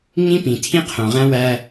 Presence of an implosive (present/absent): absent